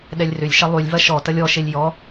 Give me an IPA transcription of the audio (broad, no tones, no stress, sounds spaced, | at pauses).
ɗ ɛ lʲ r ʏ lʲ ʃ ɐ lˠ y lʲ v ɐ ʃ ɔ t ɐ lʲ ɔ ʃ e lʲ j ɔ